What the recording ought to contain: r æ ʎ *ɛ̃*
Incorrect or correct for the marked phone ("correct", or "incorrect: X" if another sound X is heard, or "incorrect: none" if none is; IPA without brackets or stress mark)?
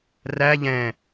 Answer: correct